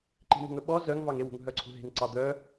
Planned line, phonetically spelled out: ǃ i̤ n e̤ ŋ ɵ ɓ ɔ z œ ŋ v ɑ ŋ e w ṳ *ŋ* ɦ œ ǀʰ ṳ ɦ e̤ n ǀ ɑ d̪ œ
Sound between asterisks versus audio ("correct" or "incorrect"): correct